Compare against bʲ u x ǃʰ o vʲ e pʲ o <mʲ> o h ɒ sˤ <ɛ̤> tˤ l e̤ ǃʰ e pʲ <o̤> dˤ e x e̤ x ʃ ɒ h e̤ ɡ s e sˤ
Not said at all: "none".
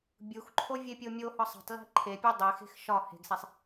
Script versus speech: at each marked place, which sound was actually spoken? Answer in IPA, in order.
mʲ, e̤, o

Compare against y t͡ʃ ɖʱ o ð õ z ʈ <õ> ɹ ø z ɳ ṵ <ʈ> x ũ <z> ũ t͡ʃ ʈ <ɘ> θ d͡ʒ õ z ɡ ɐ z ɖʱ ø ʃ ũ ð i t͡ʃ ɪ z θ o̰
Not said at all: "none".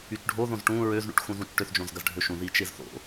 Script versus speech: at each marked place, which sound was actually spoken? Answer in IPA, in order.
ũ, ʈ, z, ø

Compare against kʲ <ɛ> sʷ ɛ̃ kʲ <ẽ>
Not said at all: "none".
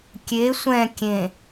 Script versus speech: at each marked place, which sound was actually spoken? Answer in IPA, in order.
e, ẽ

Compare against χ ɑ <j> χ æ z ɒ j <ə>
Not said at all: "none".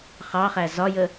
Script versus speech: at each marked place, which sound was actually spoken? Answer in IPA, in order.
none, ə

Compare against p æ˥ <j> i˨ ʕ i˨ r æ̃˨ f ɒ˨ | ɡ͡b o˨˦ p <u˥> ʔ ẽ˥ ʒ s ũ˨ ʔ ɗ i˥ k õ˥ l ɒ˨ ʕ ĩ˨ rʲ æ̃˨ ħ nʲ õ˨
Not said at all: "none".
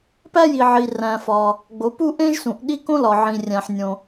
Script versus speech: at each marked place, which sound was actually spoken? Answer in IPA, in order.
j, u˥

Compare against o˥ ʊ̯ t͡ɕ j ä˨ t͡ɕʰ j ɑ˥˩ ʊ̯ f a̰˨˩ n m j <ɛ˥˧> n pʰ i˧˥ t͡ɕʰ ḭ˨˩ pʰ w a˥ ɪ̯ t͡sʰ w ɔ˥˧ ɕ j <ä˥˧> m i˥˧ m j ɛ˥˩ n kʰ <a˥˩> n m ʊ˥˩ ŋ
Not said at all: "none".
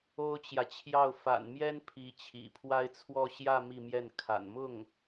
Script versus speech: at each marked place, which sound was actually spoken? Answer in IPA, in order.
ɛ˥, ä˥˧, a̰˨˩

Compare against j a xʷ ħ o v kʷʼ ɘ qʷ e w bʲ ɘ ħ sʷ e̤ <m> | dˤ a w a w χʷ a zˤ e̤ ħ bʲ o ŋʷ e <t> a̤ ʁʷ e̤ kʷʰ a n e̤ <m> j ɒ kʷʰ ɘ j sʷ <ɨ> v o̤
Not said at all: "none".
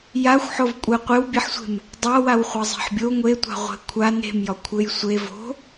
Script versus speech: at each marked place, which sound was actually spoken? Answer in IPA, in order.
m, tʷ, m, e

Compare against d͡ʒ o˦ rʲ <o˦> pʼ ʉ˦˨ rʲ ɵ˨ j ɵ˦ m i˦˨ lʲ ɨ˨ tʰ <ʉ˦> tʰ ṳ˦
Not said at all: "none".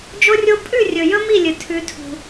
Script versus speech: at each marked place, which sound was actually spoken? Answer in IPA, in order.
o˦, ʉ˦

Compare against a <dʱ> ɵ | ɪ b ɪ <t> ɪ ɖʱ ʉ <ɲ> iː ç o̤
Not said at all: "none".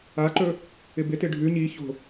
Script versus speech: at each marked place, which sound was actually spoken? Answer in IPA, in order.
ǃ, t, ɲ

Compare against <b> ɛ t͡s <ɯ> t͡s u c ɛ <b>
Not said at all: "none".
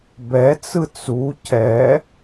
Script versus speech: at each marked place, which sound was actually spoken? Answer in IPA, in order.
b, ɯ, none

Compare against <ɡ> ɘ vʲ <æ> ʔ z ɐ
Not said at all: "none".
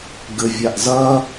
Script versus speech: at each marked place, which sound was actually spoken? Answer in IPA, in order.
ɡ, a

